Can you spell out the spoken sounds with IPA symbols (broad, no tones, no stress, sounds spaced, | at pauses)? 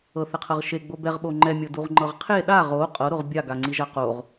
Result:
ɤ θ ɛ qʰ ɤ ʁ ʃ e ɡ͡b o b ɛ ʁ ɓ o ŋ͡ǃ ɛ mʲ ɤ d u ʁ ŋ͡ǃ ɤ ʁ qʰ e ɗ a ʁ o qʼ ɤ ɾ o ʁ bʲ a ɡ a ŋ͡ǀ i ʒ a q o ʁ